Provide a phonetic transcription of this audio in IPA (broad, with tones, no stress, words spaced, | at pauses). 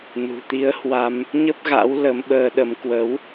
nṳ˨˩t̪i˨˦ə̯hwa˧m | ɲə˦˥p̚ ɣa̰˧˥w lə˨˦mɓəː˧ɗə˨˦m kwə˨˦w